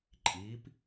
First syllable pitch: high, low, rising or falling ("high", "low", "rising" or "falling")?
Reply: rising